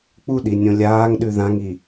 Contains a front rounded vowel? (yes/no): no